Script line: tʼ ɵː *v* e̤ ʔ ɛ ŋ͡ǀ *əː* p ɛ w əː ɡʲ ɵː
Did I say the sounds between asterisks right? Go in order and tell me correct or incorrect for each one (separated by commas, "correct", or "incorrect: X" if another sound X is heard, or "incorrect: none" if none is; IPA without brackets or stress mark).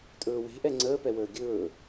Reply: incorrect: w, correct